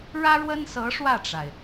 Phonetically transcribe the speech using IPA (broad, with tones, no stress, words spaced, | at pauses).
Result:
ɻä˥ɻwə˥nsɤ˧˥ ʂwä˥˩ʈ͡ʂa˩ɪ̯